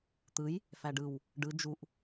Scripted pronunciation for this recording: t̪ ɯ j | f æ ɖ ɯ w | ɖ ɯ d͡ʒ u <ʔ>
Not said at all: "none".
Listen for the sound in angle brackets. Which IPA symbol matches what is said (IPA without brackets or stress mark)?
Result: ʔ